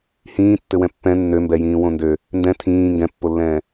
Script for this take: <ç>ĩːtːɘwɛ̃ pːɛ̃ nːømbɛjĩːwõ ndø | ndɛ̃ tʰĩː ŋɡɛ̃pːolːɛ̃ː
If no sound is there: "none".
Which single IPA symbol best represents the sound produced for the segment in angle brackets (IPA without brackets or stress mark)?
h